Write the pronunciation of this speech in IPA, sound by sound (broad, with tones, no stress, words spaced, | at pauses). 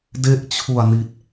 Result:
de˥˩ʔt͡ɕʰu˨˩a̯ni˨˩t̚